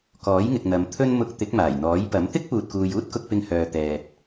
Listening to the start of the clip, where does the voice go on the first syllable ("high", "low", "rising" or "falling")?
rising